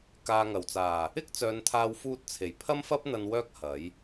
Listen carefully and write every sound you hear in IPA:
k aː˨ ŋ ɐ˨˩ w t͡s aː˨˩ | ɪ˥ k̚ t͡s œː˨˧ n t̪ʰ aː˧ w f uː˧ t̚ t͡sʰ e˨˩ j pʰ ɐ˥ m f ɐ˥ p̚ n̪ ɐ˧ n w œː˥ k̚ h ɐ˨˥ j

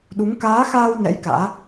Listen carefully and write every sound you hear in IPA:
ɗ u˨˦ ŋ k aː˨˦ x aː˧ w n ɛ̰˧˥ j k a̰ː˧˥

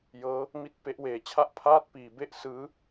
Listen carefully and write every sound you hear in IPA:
j ɤː˦˥ | m i˦˥ t̚ p e˦˥ ʔ w eː˧ t͡ɕʰ a˥˩ ʔ pʰ aː˥˩ t̚ p iː˧ b e˥˩ ʔ s ɯː˦˥

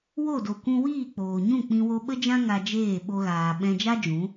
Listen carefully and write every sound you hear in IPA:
w o˦˨ d o˨ kʷ ũ˧ w iː˦˨ k͡p oː˨ ɲ ũ˦˨ k͡p ĩ˧ w o˧ ɓ ə˦ d͡ʒ ã˦ ŋ a˧ d͡ʒ eː˦˨ ɓ o˧ ɣ aː˨ ɓ ɛ̃˧ d͡ʒ a˦ d͡ʒ ũ˨˦

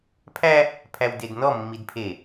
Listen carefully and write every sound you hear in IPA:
pʰ æ | pʰ æ w d e d n ɔ mː i d pʰ e

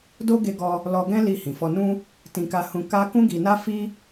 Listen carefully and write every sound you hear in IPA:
d o˦ ɡ e˧ ɡ ɔ˧ | l ɔ˧ ɡ ɛ̃˦ l i˧ h ĩ˨ f ɔ˧ n ũ˦ | t ĩ˧ k a˧ h ũ˧ k a˦ k ũ˦ ɡ i˧ n a˦ f i˦

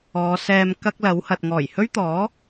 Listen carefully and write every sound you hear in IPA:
ɔː˨˧ s ɛː˧ m k ɐ˥ k̚ l ɐ˨˥ w h ɐ˨ t̚ ŋ ɔː˨˩ j h ɵ˥ ɥ t̪ ɔː˨˥

